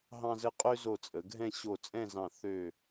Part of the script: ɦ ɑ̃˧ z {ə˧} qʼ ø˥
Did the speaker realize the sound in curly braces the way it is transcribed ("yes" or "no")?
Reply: yes